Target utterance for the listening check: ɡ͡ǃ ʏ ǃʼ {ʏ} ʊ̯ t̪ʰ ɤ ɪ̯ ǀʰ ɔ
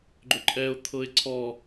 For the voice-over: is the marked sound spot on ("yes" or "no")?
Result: no